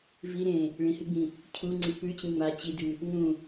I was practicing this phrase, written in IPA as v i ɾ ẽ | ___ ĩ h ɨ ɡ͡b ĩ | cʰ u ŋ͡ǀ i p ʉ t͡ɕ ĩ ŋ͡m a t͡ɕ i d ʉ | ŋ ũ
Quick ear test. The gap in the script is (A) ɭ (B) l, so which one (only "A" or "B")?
A